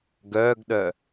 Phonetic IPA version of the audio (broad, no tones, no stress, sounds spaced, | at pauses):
ɡ œː ɡ ɗ œ